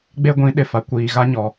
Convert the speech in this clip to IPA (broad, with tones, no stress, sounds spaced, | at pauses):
ɡ͡b e˦ ɡʷ ĩ˨˦ ɗ ɪ˨ f a˨ kʷ iː˨ ɣ a˦ ɲ ɔ˨